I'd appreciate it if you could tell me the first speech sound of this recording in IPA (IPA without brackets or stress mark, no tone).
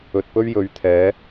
ɵ